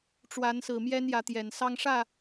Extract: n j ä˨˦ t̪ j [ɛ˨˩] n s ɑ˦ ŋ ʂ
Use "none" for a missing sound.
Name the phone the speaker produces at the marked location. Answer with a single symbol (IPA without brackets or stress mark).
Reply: ɛ˨˩